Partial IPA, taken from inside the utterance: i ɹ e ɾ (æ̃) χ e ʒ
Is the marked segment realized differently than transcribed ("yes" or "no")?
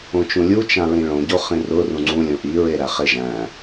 yes